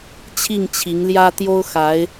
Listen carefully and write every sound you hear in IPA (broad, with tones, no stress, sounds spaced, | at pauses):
t͡ɕʰ i˥˩ ŋ t͡ɕʰ i˧˥ ŋ l j ä˥ t̪ j o˥ ʊ̯ x a˧˥ ɪ̯